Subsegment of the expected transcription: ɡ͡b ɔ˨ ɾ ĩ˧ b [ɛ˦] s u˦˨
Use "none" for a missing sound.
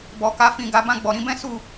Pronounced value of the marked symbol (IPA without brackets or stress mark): ɛ̃˦